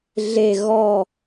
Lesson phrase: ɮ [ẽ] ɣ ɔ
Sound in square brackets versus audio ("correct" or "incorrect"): incorrect